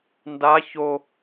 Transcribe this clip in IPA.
nda ço

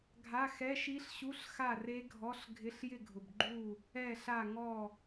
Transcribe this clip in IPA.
ɡʱa˧˥˧xɛ˧˥˧ʃi˦˥ɬɕu˧˥˧ɬ xa˥˨re˦˥ɡʱɔ˧˥˧ɬ ɡʱɪ˧˥˧ɬjɪ˥˨ɡʱʊ˨bɡ͡ǃu˥˨ | ɛ˥˨ɬa˥˨ ŋɔ˥˨

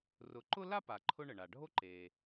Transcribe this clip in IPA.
rʊ˨ǃʊ˥ la˥pa˩ ǃʰʊ˦ɳə˩ɳa˩ɖʱo˥ ǃe˩

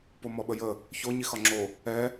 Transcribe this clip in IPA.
pomɔɓəjə | ço ɲixɒŋ͡ǁo | ɛ

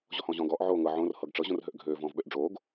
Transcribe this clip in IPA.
ʑɔhɔ̃ːʑɔ̃ːɡɔːʔ ʕoːŋɤ ʕõr hɤɡʈ͡ʂɤ ʑõrɦøʔɡʱøː vɔ̃ːvɓøʔɖ͡ʐoːɡ

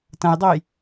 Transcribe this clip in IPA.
tɐ̃jdˤoj

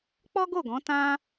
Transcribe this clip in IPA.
k͡pɔ˦ɡo˦˨ɡɔ̃˨˦ tã˦

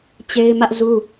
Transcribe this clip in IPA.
t͡ɕe˦ɪ̯mä˦ʔzu˦

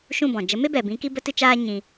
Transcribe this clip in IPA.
ʃũ˦˨bɔ̃˨ d͡ʒə˨˦me˦bɛ˨bĩ˨˦ ki˦bə˦tɨ˦t͡ʃaː˦ ɲĩ˧

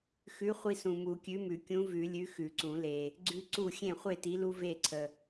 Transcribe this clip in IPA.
xʉ˨˥ χʷi˦sũ˨ mu˨˩˦kʲʉ˨˥mʉ˨˩˦ kʲũ˨˥vʉ˨˩˦lʲʉ˨˥ xʉ˨˩˦ǀũ˨˩˦le˨ | ɡ͡ǀʉ˦ ǀu˥˩ xʲẽ˥˩χʷe˥˩ti˨˥lu˦ ve˥˩ǀʰə˨

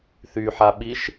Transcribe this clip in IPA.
θyħaɓiʃ

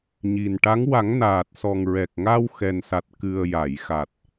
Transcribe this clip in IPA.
ɲi˨˩nʈa˧˥ŋ wa˨˩˦ŋnaː˨˩t̚sɔ˨˩ŋɹɛ˨˩k̚ ŋa˧wxɛ˨˩nsa˨˩t̚ kɨ˨˩ə̯ ja˨˩˨jxa˨˩t̚

